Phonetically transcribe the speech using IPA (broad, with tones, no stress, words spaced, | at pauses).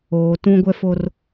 oː˨tũ˦ ɡʷɛ˦fo˦r